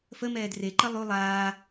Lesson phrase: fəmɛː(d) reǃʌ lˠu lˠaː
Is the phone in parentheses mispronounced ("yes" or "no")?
no